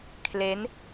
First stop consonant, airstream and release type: aspirated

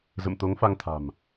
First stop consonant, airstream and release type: plain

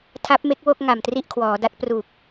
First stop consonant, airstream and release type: aspirated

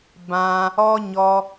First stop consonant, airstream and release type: plain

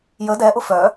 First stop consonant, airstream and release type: plain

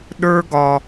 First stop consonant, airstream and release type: implosive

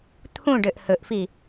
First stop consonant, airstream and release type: aspirated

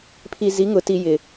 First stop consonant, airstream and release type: aspirated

